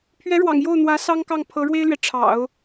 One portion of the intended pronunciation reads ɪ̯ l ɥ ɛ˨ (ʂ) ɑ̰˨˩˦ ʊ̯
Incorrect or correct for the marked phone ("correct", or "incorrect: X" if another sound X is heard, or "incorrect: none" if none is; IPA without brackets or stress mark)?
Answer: incorrect: ʈ͡ʂʰ